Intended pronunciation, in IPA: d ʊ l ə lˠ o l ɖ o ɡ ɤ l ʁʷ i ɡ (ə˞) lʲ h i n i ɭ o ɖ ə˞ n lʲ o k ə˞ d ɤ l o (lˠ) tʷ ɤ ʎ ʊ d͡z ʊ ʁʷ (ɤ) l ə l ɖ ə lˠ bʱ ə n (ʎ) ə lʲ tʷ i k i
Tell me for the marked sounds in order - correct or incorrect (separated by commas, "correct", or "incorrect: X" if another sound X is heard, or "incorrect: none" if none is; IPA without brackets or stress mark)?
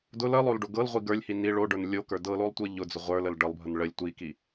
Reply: correct, correct, incorrect: ə˞, incorrect: ɭ